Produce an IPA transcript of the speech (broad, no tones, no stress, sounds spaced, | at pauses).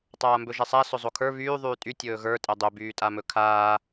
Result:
tˤ aː m b ɵ ʒ ɛ sˤ a s ɵ zˤ o kʰ ə˞ β yː ðˤ yː tʼ y tʲ ɵː ɣ ə˞ tʼ ɛ dˤ ø b yː tʼ a m ɵ kʰ aː